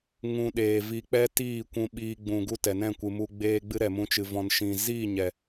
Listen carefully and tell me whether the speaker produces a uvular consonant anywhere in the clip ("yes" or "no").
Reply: no